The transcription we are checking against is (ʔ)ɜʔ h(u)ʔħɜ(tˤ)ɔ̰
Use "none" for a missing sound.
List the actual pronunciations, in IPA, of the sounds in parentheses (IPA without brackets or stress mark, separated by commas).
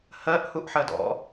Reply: h, u, d